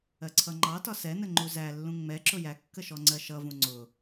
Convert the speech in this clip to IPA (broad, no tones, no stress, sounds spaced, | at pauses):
ɜ ǀʰ ʌ ŋ͡ǃ ɑ t ɒ s ɛ n ə ŋ͡ǃ u z æ lː ũ ŋ͡m ɛ ǁ ʊ j æ kː ə ʃ ɔ ŋ͡ǀ ɜ ʃ ʌ v ũ ŋ͡ǀ ʊ